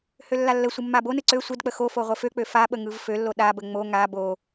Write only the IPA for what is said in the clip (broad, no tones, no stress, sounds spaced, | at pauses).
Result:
h ø lː a lː ə sʷ ɯ mː a b o n ɯ ǀ ø sʷ ə d k͡p ə x o f o ʁʷ ə f ø k͡p ø f a ɓ ə ŋ ɯ v f ø lː o ɗ a b ə ŋ͡m o ŋ a b o